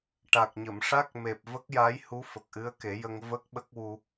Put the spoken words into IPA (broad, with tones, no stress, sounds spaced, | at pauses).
ʈ a˨˩ k̚ ɲ ə˨˩˨ m ʂ a˦˥ k̚ m e˨˩ p̚ v ə˦˥ k̚ j a˧˥ j h u˧˥ f ə˨˩ k̚ ʔ ɨ˧˥ ə̯ k e˨˩˦ j ə˧ ŋ v ə˦˥ k̚ ɓ ə˦˥ k̚ w u˧